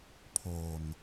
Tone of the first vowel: low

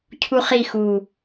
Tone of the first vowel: high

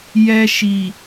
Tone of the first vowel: high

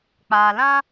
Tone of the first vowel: low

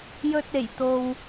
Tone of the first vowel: low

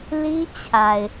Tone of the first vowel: high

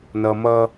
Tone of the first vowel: low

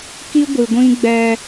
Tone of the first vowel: high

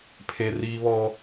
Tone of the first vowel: high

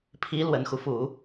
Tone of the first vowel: rising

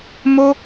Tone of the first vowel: high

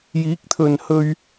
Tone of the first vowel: rising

